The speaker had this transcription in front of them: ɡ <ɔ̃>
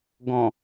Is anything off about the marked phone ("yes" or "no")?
no